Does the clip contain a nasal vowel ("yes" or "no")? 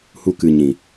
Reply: yes